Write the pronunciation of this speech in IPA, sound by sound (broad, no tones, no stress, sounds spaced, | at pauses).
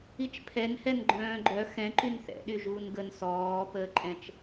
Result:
i t͡ʃ pʰ ɛ n h ɛ n ɡ͡ǃ œ̃ː ɡ͡ǃ œ x ɛ̃ ǃ y n θ ɛ̰ ɗ y ʒ uː n ɡ ə n s ɔː p əː ǃʼ ɛ̃ t͡ʃ